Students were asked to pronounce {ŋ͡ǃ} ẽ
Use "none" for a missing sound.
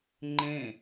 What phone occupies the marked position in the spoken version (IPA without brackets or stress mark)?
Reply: ŋ͡ǃ